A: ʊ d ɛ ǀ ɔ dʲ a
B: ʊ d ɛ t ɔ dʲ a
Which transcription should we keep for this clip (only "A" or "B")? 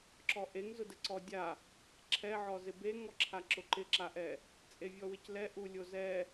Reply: A